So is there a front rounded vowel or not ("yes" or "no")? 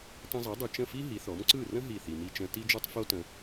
no